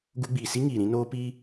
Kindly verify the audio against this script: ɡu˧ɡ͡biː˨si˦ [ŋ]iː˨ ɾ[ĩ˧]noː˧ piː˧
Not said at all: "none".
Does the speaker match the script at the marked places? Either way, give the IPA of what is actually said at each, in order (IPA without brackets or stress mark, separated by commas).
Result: ŋ, ĩ˧